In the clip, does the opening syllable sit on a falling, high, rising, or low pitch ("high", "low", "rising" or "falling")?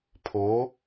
rising